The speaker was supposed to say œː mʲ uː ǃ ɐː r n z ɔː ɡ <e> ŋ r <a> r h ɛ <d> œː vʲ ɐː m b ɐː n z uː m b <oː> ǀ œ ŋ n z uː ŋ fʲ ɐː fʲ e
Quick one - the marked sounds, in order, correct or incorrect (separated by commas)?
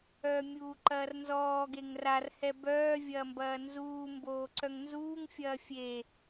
correct, correct, incorrect, correct